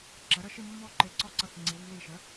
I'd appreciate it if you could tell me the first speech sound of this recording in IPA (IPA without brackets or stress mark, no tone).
ǁ